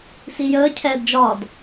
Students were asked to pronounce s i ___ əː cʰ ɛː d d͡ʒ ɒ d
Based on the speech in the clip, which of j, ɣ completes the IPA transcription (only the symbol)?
j